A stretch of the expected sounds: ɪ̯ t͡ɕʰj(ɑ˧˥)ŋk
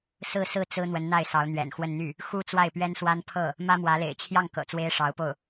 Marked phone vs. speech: incorrect: ɑ˥˩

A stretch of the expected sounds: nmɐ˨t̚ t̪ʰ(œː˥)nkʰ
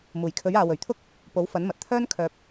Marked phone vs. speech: correct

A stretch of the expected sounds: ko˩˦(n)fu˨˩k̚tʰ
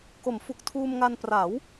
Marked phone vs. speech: incorrect: m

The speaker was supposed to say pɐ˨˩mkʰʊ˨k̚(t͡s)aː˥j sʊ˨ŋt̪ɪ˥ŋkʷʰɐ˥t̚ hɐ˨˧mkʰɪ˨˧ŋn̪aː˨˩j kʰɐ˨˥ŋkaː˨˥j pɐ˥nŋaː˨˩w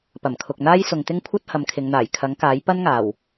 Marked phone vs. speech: incorrect: n̪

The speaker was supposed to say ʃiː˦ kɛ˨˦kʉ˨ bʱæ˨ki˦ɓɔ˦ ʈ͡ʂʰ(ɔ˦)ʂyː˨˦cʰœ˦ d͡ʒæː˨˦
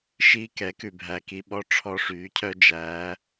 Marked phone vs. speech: correct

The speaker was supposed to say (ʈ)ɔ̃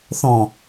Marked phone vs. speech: incorrect: θ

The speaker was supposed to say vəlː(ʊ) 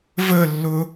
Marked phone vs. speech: correct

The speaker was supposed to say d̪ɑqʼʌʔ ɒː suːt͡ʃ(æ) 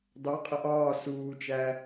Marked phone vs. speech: correct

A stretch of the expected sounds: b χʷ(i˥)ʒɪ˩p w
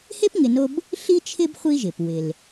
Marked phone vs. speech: correct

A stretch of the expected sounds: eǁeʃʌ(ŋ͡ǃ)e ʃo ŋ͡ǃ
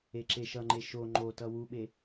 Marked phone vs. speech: correct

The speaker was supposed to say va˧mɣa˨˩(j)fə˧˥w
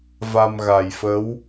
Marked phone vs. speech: correct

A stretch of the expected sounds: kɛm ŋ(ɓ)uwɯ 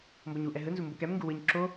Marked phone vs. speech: incorrect: ɡ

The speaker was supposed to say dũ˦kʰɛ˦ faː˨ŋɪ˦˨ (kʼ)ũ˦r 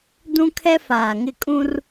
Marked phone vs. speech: correct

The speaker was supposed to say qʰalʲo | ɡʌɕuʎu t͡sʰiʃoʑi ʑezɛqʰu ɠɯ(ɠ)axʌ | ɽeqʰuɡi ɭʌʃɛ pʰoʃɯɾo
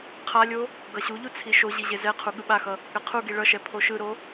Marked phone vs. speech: incorrect: ɓ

